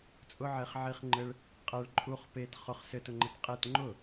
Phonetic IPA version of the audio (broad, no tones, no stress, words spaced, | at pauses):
t͡sʼʊʕeχʕiχ ŋ͡ǃɘɭ | qʼɛɭ ǃʼuχ pet χʊχ sɘtʊŋ͡ǃɛt qʼet ŋ͡ǃʊ